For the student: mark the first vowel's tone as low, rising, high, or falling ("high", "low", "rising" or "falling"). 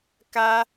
high